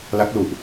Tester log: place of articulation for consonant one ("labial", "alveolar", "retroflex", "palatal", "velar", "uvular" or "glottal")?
alveolar